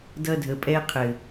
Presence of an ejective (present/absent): present